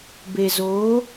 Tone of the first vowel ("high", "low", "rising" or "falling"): low